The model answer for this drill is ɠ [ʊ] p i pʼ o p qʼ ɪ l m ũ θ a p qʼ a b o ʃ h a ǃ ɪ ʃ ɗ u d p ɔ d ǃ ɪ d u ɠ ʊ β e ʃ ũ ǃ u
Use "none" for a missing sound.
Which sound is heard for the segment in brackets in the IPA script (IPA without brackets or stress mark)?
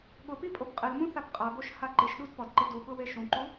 ʊ